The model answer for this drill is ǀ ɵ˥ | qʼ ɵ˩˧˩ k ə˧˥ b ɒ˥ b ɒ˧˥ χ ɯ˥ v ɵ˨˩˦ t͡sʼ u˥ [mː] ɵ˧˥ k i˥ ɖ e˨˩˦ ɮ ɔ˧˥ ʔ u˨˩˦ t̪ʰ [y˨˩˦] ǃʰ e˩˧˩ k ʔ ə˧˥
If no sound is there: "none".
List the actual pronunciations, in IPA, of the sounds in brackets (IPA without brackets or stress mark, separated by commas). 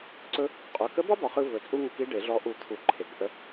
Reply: ŋ, u˨˩˦